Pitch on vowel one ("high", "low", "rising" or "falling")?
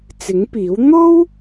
rising